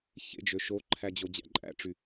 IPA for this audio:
çḛd͡ʒø ʃoǃʰæ d͡ʑod͡ʑæ̰ǃʼæ̰ʈ͡ʂy

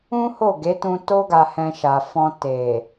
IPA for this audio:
ũ˦ho˦˨ɡe˨˦tũ˧ to˦ɡa˧ hɛ̃˧ʃa˨ fɔ̃˧ te˨

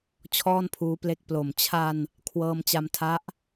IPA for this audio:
t͡ɕʰɔː˥˩npʰuː˦˥ple˦˥k̚ plo˨˩m t͡ɕʰa˧n | kʰwɤː˧mt͡ɕa˧mtʰa˦˥ʔ

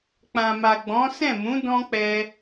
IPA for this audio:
k͡pã˨ma˨ɡ͡bɔ̃˨˦ sɛ̃˦˨mũ˨˦ dɔ̃˦k͡pɛ˧

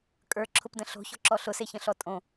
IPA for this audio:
kʼə˞ǁʰʊpdə̃ ɬo̤çɔ̤ǁɔ ɬʊseçə̃ɬɔ tʼõ

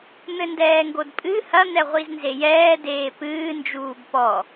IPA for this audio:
n̪ɘndɛːŋɡodpʼɨ hɐn̪ɛ ʁʷiznzejɛː deːpɨːnd͡ʒuːb pɔ

